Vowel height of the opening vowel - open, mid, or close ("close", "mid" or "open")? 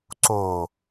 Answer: mid